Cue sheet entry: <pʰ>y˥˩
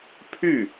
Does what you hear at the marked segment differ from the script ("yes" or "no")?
no